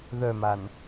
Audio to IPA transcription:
ð œ m a n

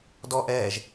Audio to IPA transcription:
d ɔ ʔ ɛː ʒ

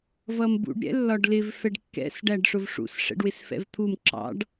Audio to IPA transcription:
v ʌ m b ṵ ɖ ɾʲ ɛ̰ lː ɒ ɖ l ɪ v f ɛ ɖ kː ɛ̰ s ɖ æ ɖ ʂ ʊ v ʂ ṵ s ʂ ɛ̰ ɖ w ɪ s f ɛ̰ v t̪ʰ u m ǁ ɑ̰ ɖ

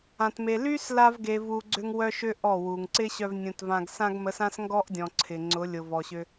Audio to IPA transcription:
ã˨ t m e˨ l y˦ s l a˧ v ɡ e˨ v u˨ ɡ͡ǀ ʏ˦ ŋ w œ˦ ʃ ʏ˦ ʔ ɔ˦˨ w u˨ ŋ ǀ ɪ˦ ɕ œ˧ v nʲ ũ˨ t v ã˧ ɡ s ã˧ ɡ m ə˨˦ s ã˦ s ŋ ɡ ɔ˦ ʔ dʲ ɔ̃˨ ǀʰ ɪ˨ ŋ͡ǀ ʊ˨˦ lʲ ʊ˨ v ɔ˨ ɕ ʏ˧

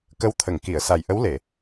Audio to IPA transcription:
k ə˧˥ w t̪ʰ ə˨˩˨ ŋ k i˨˩˨ ə̯ s a˨˩ j ʔ ə˧˥ w l e˨˩˨

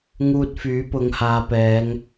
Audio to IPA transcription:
ŋ uː˧ t̚ f yː˨˥ p ʊ˨˧ ŋ h aː˨˧ p ɛː˨˧ ŋ

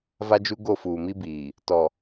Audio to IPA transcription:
v a˦ d͡ʒ u˦ ɡ o˦˨ f uː˨ m i˦ b iː˨ | t ɔ˨

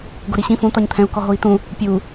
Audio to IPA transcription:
ɡ o ɾ i ɕ ĩ f ũ t̪ ɒ ɲ t̪ʰ ɛ̃ u̯ k ɔ ɦ o i̯ t̪ ũ | pʲ u

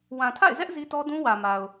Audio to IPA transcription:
w ã˨ tʰ a̰˦˨ ɪ̯ z ɛ˦ ʔ z i˦ t ɔ˦ d ũ˦ w ä˨ m a˨ ʊ̯

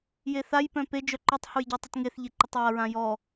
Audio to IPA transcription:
j e θ a j p œ̃ p e d͡ʒ œ ǃ u tˤ h u j ɟ œ tˤ ɪ t ŋ e θ ʎ e ǃ ʏ tˤ j a ɹ ã j ɔ

